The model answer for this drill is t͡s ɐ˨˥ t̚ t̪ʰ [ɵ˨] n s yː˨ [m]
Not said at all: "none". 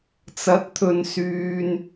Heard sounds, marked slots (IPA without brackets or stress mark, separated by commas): ɵ˨, n